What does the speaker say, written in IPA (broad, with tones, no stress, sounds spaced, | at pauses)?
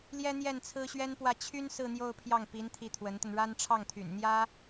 l j ɛ˥ n̪ j ɛ˥˩ n t͡sʰ ɹ̩˥ ɕ ɥ ɛ˥ n p w ä˥˩ t͡ɕʰ y˥ n s ɹ̩˥˧ n̪ j o˥˧ ʊ̯ pʰ j ɑ˥˩ ŋ p i˧˥ n t̪ʰ i˧˥ t̪ʰ w ə˧˥ n t̪ ə˧ n ɻ a˥ n ʈ͡ʂʰ ɑ˥˩ ŋ t̪ʰ y̰˨˩ n n̪ j ä˥